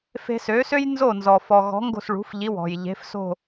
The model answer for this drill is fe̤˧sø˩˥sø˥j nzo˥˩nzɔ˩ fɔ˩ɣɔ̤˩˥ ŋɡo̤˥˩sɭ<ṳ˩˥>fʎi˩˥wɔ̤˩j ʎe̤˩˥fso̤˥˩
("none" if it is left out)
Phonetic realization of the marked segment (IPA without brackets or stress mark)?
ṳ˩˥